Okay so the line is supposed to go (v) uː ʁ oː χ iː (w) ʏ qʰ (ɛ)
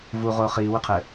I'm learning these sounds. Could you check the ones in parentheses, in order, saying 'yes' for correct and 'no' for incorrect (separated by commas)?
yes, yes, no